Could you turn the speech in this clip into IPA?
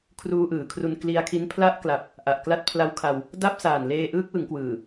kʰ r uː˧ ʔ ɯː˩˦ kʰ r u˧ n k l i˧ a̯ kʰ i˦˥ n pʰ l a˥˩ ʔ k l a˨˩ p̚ | ʔ a˨˩ ʔ k l a˦˥ t̚ pʰ l a˦˥ w kʰ a˧ w | d a˥˩ p̚ s aː˨˩ n l eː˧ ʔ ɯː˦˥ k̚ w ɯ˩˦ ŋ k w ɯː˨˩

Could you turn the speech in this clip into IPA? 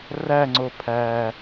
r æ ŋ͡ǀ o pʰ æ

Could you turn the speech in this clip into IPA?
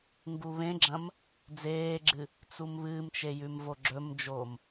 ŋ ɡ u β ẽ ɡ͡ǁ ɐ̃ m | d͡z eː ɡ͡ǁ ɨ | t͡s u m β ɨː m t͡ʃ e j ʉ m v o ɡ͡ǁ ɵ m d͡ʒ oː m

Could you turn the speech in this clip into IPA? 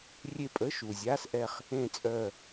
rʲ e˦˨ pʼ ə˧˥˧ ʃ u˨˩ zʲ a˧˥˧ s ʔ ɛ˦˨ χ | ẽ˦˨ t͡sʼ œ˦˨

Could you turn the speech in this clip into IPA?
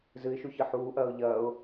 z ɨ ɪ̯ ʃ u ç ɨ ħ uː ʔ ɐː ʊ̯ ʎ ɐː ʊ̯

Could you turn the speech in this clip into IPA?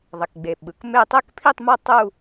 ðˤ ɛ˩ k ɡ͡b e˩ ɓ ɯ˩ k m e˥˧ tˤ e˥˧ k pʰ i˥˧ tˤ m ʌ˥˧ tˤ u˥˧

